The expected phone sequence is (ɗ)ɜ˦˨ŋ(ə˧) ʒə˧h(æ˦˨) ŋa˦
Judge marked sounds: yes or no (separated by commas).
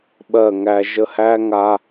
no, no, no